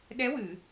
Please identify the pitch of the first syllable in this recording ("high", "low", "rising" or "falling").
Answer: rising